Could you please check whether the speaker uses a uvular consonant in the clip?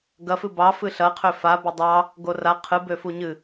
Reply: yes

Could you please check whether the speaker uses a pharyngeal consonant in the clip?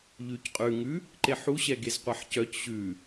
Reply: yes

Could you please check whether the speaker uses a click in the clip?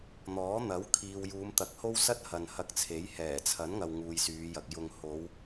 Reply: no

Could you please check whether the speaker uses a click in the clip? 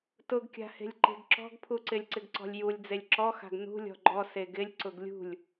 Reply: yes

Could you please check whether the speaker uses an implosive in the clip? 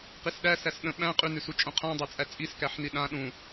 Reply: yes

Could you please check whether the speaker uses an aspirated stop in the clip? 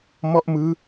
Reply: no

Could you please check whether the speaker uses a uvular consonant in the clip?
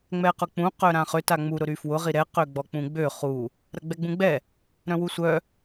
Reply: yes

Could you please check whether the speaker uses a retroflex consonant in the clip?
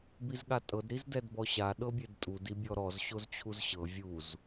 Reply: no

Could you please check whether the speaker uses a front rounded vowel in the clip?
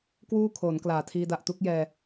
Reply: no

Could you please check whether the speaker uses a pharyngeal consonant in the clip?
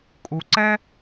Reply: no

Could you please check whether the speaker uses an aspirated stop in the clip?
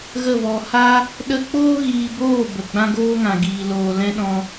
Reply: no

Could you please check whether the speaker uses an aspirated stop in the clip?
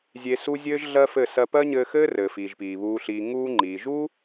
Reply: no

